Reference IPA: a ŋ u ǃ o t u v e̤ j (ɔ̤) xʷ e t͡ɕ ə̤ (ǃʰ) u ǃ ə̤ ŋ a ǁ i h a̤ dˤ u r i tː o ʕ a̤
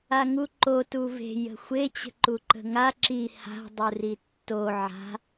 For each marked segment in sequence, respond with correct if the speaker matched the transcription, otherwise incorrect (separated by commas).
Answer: incorrect, incorrect